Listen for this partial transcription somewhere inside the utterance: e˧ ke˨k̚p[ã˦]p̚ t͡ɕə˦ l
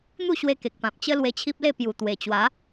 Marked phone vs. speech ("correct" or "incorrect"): incorrect